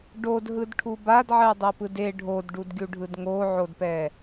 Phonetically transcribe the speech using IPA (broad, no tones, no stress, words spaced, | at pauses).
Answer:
ɖodɦɯdʈʰu badʕɛdˤopɯd e ɖʱodɖudɡʲuɖʱɯd ŋoʕodpɛ